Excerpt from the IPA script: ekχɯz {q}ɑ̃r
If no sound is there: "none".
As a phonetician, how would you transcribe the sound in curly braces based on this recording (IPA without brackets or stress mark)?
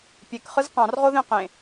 q